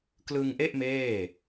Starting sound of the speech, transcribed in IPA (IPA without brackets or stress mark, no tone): k